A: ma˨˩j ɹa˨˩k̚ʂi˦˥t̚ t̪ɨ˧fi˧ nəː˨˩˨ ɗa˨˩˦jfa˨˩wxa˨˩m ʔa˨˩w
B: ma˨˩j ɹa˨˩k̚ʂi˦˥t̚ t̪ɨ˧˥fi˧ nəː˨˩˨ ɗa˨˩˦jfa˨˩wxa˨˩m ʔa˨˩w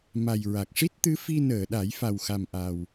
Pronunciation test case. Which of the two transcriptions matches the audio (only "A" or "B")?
B